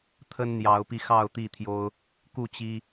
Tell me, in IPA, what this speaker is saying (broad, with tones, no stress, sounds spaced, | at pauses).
t̪ʰ ə˦ n n̪ j ɑ˨˦ ʊ̯ p i˧ x ɑ˥˨ ʊ̯ t̪ i˥˨ t̪ʰ j o˦ ʊ̯ | k u˥˨ t͡ɕ i˦